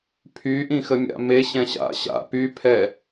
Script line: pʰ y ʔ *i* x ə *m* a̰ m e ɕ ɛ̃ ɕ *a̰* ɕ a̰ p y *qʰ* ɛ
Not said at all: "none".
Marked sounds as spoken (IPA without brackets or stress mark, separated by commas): ĩ, mʲ, a̰, pʰ